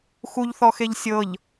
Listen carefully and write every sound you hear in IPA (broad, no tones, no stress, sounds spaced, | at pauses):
x u ʎ θ ɔ x e ʎ sʲ ɤ ʎ